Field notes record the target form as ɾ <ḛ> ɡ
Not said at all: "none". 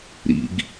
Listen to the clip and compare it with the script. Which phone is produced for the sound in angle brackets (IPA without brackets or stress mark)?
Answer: ḭ